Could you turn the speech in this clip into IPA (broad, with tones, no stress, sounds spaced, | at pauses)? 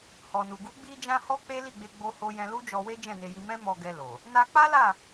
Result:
h ɔ˨ n u˨ ɡ u˨˦ ɡ͡b i˧ d͡ʒ ã˧ h ɔ˦ k͡p e˦ l i˦˨ ɡ͡b e˧ ɡ͡b o˦ h o˦ j ɛ̃˧ l u˦ d͡ʒ ɔ˧ w e˦ d͡ʒ ɛ̃˦˨ n e˧ j i˧ m ɛ̃˦ m ɔ˧ ɡ ɛ˧ l o˨ | n a˧ k͡p a˦ l a˦˨